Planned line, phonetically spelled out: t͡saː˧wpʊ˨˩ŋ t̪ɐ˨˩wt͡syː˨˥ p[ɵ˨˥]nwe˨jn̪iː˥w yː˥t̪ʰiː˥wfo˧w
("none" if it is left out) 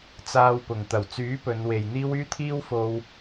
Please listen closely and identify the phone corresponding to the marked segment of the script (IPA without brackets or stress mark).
ɵ˨˧